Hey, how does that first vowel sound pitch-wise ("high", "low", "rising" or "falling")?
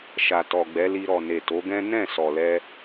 low